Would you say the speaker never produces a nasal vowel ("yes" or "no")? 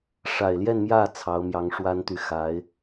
yes